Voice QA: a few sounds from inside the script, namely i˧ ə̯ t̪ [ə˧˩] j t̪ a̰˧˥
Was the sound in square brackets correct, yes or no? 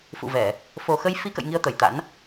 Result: yes